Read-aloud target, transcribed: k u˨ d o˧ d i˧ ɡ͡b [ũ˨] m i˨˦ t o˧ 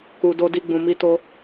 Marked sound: correct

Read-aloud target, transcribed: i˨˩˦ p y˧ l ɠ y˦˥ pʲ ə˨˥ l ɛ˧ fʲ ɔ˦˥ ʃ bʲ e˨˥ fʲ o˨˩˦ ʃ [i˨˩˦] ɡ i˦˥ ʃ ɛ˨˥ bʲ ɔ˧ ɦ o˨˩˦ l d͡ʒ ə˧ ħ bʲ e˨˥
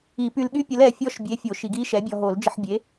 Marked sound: correct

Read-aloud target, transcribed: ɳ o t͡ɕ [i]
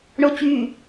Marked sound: incorrect: y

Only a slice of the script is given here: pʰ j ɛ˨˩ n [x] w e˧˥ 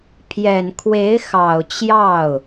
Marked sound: incorrect: kʰ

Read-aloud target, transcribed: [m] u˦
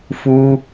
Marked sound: incorrect: f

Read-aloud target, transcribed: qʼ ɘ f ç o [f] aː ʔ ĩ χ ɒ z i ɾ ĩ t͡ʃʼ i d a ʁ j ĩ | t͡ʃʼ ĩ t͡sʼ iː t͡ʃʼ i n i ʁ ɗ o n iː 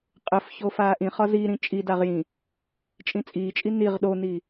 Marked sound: correct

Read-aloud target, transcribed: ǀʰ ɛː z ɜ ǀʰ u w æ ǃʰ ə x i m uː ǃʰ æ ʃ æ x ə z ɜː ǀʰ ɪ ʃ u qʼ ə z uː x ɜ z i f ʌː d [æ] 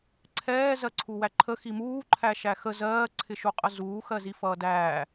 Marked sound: incorrect: æː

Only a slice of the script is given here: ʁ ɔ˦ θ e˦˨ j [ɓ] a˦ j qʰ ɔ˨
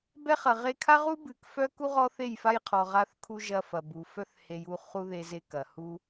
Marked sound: incorrect: f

